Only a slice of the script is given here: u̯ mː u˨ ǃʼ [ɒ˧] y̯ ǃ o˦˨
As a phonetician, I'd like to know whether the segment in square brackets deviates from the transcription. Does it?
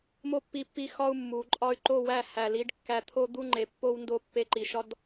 no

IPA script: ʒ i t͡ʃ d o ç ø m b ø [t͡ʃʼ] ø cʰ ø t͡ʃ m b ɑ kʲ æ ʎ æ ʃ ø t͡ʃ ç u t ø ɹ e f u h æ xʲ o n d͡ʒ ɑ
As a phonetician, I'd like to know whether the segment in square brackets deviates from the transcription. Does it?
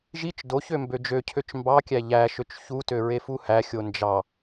yes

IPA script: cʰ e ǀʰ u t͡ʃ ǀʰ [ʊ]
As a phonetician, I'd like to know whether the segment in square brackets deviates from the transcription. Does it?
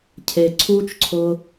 no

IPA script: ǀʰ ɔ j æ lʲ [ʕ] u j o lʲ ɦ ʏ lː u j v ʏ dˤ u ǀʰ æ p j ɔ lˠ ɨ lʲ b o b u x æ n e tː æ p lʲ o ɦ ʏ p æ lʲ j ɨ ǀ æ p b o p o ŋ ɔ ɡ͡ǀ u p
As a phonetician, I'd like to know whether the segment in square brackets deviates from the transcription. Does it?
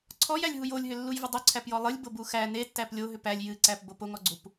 yes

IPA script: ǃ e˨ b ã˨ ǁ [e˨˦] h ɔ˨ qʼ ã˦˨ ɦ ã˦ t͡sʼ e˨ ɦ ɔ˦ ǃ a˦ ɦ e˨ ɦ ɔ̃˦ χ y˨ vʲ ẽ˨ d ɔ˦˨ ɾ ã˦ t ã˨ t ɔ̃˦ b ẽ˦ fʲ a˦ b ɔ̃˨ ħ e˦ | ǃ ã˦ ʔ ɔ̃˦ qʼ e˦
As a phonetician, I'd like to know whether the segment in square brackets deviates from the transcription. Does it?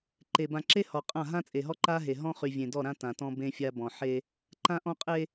yes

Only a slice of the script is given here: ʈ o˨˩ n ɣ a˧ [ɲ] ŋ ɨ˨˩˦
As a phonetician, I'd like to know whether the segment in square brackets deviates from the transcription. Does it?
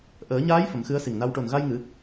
yes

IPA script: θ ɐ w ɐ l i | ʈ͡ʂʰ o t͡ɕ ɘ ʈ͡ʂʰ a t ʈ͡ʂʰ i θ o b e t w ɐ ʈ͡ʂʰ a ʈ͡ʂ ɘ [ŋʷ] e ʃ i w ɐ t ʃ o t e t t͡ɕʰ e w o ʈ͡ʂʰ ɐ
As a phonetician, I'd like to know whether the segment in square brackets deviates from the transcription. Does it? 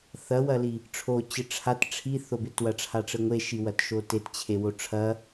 no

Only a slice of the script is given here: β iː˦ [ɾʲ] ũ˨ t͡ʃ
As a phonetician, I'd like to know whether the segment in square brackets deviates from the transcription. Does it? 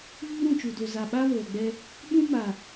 yes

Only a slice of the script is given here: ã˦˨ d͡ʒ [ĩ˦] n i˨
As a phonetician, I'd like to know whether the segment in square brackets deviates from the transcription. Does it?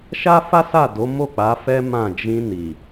yes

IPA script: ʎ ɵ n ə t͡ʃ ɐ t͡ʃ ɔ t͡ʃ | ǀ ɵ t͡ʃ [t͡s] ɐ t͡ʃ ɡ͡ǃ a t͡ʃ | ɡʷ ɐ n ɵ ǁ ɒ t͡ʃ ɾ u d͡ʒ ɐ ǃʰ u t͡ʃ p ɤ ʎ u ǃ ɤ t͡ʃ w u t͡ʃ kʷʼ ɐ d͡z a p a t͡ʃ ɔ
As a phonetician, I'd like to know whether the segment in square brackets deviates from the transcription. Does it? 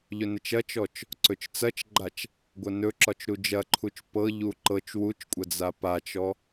no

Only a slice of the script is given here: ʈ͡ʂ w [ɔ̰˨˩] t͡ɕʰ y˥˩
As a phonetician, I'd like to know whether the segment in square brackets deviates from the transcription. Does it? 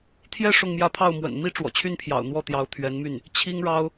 no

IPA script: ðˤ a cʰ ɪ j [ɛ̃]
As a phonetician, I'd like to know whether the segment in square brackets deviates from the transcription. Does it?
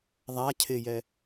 yes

